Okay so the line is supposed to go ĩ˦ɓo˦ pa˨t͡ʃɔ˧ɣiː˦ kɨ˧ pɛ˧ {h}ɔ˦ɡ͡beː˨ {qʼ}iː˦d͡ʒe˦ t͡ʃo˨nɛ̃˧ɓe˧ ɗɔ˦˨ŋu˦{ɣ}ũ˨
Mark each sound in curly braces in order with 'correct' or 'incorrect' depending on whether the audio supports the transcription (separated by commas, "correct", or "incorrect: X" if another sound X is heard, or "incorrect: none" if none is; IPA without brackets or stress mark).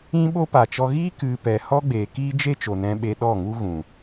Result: correct, incorrect: k, correct